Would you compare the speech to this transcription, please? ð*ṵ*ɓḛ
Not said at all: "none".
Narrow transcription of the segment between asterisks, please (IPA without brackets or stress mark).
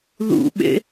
ṵ